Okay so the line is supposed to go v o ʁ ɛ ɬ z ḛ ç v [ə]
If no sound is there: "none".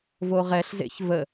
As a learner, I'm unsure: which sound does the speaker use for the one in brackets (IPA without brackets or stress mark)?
ə